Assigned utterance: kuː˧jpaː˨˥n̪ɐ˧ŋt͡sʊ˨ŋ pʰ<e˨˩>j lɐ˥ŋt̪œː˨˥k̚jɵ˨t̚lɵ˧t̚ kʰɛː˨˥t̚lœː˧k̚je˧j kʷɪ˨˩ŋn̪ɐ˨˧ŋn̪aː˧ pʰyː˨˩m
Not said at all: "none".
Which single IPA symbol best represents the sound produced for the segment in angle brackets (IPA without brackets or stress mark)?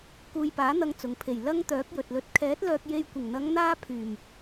e˨˩